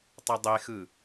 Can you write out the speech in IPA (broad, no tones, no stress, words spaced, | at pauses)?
tˤɛdˤexɯ